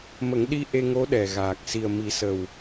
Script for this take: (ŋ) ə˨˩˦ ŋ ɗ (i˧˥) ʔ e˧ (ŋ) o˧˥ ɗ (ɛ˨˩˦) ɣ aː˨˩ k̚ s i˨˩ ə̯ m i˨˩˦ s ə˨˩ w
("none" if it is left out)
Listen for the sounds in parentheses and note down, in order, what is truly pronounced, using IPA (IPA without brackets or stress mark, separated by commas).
m, i˧, ŋ, ɛ˨˩